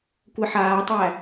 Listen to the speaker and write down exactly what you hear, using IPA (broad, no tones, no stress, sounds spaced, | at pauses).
kʷ ɛ ħ aː tˤ æ